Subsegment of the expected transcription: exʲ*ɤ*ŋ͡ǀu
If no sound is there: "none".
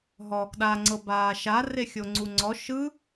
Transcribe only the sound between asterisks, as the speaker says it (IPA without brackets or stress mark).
o